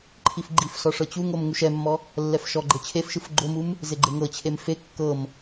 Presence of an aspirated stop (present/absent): present